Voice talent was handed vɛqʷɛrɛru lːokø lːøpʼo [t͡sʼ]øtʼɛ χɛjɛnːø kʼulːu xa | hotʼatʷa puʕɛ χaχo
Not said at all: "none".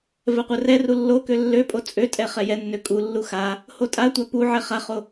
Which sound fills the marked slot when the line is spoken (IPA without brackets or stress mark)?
t͡sʼ